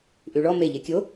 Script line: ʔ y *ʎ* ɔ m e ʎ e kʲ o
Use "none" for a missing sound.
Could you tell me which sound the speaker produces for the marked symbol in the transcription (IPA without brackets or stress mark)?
ɭ